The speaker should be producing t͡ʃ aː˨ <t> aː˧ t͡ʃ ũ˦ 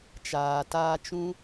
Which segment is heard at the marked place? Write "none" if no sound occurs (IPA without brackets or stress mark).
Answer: t